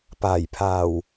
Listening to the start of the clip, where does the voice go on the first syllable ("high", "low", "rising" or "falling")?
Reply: low